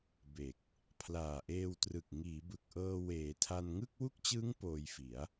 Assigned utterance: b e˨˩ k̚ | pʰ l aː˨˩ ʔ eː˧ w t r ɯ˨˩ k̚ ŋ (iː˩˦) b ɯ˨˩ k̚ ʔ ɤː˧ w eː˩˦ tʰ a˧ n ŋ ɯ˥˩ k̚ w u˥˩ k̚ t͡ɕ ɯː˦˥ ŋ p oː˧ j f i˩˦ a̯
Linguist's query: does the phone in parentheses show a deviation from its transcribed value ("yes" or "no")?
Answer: no